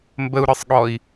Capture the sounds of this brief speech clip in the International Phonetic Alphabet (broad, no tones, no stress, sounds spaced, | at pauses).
m b ə u̯ ɾ ɯ sˤ ɠ ɔ i̯